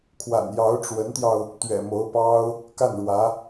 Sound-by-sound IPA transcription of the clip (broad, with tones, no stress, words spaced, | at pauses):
kʰwa̰˨˩njɑ˧˥ʊ̯ʈ͡ʂwə˧˥nt̪jɑ˧ʊ̯ | t̪ɥɛ̰˨˩mo˧˥ʊ̯pɑ˥ʊ̯ | ka˥˩nɻwä˧˥